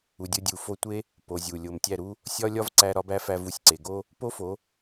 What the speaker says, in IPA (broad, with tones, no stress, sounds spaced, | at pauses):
u˨ dʲ o˧ dʲ u˨ f o˦˨ tʷ e˦ | p o˨ zʲ u˨ lʲ o˨ m tʲ æ˦˨ ɾ u˦ | sʲ ɒ˦ lʲ ɒ˦ v ǀ æ˧ ɾ ɒ˦ b æ˦ f æ˧ v u˨˦ sʲ ǀ e˨ ɡ o˦ | p o˦ f o˨˦